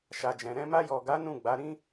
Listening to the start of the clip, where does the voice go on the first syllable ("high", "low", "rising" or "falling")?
low